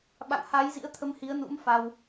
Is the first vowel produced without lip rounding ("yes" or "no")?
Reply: yes